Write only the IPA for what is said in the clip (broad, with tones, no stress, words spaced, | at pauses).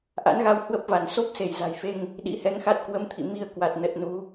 ʔa̰˧˥nɣa˧w hwə˦˥p̚va˧˩n so˦˥p̚se˧˩jza̤˨˩jfe˧ŋ | ɗḭ˧˥hɛ˧ŋxa˦˥t̚ kwə˧mt̪ʰḭ˧˨mi˧ə̯ kwa˨˩t̚ nə˨˩t̚ nu˨˦